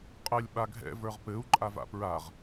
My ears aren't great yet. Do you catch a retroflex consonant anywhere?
no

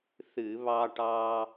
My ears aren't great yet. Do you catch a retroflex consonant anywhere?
yes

